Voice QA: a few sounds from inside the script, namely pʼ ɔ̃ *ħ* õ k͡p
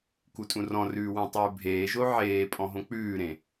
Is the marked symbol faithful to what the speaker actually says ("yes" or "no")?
no